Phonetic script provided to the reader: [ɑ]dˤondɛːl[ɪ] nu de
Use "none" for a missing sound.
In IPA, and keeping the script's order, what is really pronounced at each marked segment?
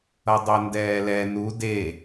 ʌ, ɛ

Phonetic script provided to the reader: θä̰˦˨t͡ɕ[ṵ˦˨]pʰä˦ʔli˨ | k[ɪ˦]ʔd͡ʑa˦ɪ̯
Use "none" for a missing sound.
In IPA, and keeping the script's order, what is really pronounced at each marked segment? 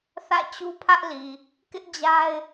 u˦, ɪ˦

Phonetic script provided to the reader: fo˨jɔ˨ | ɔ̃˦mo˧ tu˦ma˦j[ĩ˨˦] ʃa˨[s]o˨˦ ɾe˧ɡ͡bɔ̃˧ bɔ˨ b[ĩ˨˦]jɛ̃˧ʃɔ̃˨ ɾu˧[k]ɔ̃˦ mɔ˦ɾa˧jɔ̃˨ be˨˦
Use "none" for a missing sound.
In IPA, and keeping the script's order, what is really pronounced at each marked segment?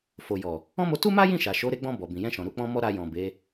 ĩ˦˨, ʃ, ĩ˨, k͡p

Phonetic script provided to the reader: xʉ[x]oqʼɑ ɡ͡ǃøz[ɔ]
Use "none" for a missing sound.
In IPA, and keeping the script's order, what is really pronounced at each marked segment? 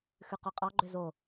q, o

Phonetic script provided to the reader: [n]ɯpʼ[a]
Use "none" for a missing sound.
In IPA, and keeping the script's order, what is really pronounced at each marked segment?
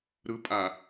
ɾ, a

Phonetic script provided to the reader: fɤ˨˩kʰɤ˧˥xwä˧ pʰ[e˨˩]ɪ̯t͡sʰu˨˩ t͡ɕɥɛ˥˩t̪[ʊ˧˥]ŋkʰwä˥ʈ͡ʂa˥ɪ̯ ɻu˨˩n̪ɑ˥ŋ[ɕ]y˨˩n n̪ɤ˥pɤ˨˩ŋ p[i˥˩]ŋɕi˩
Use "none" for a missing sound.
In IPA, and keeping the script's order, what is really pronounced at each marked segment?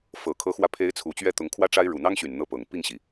e˧˥, ʊ˧˥, ɕ, i˥˩

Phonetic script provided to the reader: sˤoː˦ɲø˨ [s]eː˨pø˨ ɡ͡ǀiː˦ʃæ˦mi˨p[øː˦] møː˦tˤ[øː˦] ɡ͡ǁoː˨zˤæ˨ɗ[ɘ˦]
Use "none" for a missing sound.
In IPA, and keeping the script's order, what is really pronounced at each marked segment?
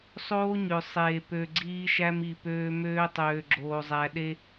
sˤ, øː˦, øː˨, e˦

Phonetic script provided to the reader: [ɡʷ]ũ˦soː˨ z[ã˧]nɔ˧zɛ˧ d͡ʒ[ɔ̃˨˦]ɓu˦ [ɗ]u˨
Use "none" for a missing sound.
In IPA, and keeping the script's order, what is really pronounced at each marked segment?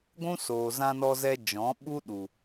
ɡʷ, ã˧, ɔ̃˨˦, ɗ

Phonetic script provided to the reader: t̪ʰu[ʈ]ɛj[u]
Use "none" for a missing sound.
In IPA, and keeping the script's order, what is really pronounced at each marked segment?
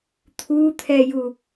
t̪ʰ, u

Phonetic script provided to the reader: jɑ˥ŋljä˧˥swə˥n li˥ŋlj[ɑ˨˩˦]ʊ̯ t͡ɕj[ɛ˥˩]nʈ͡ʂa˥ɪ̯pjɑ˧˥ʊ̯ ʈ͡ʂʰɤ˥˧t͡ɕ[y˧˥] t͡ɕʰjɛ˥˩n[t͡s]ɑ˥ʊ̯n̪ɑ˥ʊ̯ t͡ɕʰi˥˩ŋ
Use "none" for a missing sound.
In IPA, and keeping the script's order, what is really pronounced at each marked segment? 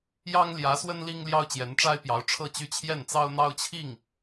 ɑ˥, ɛ˧˥, y˥˧, t͡s

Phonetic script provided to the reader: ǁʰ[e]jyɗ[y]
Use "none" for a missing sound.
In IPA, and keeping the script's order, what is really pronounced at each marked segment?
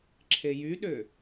e, ø

